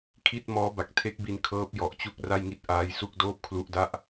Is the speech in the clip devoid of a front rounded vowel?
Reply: yes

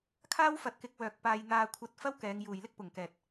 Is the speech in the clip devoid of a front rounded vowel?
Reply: no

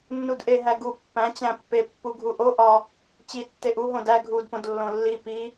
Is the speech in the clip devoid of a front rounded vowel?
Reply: yes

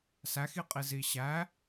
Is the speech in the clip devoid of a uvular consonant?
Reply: no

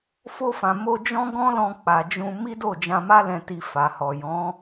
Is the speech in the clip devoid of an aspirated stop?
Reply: yes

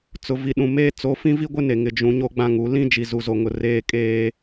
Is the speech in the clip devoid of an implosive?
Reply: no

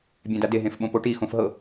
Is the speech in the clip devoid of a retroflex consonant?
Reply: no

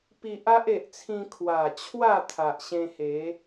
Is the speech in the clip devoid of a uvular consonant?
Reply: yes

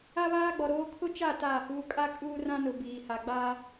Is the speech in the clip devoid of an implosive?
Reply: yes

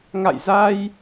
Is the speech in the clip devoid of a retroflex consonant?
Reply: yes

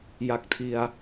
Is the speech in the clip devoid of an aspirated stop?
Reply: no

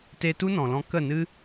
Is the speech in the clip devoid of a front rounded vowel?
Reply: yes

